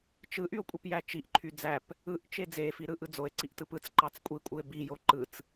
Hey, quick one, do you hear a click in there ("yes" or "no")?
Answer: yes